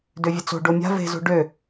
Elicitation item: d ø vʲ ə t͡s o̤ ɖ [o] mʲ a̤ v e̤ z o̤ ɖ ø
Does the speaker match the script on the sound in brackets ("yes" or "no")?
yes